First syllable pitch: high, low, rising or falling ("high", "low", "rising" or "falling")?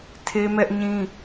high